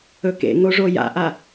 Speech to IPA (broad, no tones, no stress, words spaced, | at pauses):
ɵkḛŋoʐo ja̰ʔa